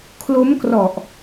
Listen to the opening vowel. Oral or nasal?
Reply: oral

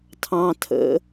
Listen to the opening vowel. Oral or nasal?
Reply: nasal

